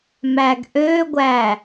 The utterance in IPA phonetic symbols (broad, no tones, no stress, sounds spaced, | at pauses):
m æ ɡ ʔ ø ɡʷ æ